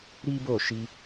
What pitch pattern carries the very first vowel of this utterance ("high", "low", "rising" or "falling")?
high